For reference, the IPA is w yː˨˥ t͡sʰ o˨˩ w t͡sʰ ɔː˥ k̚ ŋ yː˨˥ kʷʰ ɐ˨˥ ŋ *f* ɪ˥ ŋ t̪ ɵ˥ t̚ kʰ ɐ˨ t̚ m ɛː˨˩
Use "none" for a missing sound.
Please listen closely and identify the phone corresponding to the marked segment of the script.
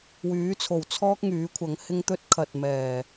h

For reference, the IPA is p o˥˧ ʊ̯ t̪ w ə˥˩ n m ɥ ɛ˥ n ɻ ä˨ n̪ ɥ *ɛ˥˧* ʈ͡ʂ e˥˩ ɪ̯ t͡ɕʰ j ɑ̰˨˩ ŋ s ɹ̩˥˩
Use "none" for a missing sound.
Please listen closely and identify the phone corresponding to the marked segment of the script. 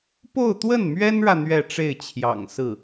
ɛ˥˧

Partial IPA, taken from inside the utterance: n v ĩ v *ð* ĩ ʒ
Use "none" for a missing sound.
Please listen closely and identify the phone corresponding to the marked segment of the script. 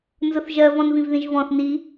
ð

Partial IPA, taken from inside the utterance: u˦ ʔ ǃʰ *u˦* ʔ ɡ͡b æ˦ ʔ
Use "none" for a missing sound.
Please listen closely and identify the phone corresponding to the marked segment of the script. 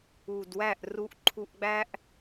u˦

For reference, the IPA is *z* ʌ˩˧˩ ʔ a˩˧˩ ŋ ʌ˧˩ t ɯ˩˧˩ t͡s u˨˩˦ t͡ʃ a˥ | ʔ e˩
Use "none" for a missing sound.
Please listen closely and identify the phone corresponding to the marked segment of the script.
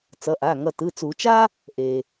t͡s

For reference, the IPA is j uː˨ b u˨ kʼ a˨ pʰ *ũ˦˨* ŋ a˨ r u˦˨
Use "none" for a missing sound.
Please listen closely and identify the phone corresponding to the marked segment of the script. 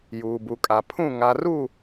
ũ˦˨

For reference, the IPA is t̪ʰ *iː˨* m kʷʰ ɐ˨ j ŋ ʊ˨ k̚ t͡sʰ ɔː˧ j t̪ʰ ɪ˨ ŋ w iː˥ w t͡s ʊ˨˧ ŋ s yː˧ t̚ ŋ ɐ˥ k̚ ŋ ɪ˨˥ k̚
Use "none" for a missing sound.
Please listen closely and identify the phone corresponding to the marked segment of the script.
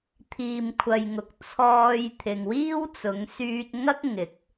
iː˨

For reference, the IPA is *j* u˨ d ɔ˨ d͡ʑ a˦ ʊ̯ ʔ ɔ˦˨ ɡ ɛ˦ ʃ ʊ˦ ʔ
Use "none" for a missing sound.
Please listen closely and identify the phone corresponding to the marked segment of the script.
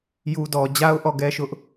j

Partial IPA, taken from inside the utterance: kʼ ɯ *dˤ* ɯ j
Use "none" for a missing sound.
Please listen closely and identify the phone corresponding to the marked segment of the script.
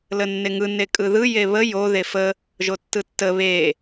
ð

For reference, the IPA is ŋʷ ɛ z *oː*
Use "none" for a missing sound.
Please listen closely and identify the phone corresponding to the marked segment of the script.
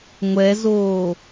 oː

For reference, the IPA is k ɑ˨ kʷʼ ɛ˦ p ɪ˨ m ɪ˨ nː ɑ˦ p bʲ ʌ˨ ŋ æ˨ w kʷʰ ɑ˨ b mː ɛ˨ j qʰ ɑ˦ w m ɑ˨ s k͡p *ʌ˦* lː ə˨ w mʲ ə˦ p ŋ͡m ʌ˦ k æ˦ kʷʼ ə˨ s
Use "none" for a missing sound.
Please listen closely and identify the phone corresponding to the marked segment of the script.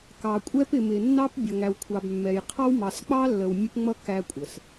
ɑ˦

